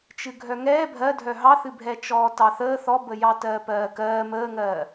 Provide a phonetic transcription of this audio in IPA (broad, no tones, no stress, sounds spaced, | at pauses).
t͡ʃ ɨ ɡʱ œ ŋ ɛː bʱ ɜ dʱ œ ɦ ɑ θ ɨ bʱ ɛː t͡ʃ ɔː t ɑ θ əː θ ɔ b ə j ɑ t ɜː p ɜː k ɜː m əː ŋ ɜː